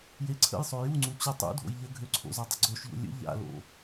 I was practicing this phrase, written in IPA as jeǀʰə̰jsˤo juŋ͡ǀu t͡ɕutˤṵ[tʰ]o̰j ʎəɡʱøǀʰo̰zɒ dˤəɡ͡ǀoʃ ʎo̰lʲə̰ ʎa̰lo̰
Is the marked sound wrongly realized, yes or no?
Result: yes